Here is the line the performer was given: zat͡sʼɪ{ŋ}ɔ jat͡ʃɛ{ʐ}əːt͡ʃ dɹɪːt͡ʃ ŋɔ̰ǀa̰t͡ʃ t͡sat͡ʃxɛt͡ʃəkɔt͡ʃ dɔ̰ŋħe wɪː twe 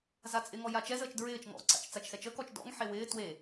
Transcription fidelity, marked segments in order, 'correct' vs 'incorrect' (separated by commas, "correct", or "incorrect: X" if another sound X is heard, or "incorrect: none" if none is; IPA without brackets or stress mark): correct, incorrect: z